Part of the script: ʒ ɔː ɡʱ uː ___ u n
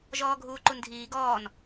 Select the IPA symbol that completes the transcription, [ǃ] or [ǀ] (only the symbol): ǃ